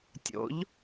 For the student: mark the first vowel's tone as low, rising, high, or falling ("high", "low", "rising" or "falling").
rising